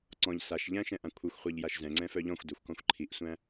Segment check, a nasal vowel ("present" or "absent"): present